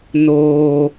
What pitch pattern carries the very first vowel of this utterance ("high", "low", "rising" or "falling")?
low